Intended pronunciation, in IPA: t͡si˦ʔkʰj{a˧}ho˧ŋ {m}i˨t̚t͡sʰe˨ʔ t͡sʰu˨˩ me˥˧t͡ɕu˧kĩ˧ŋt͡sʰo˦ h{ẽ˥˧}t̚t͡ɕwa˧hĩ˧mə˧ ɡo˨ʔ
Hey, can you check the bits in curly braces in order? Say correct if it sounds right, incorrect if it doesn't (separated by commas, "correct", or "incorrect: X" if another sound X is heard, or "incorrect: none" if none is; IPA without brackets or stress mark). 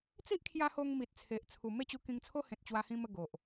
correct, correct, incorrect: ẽ˨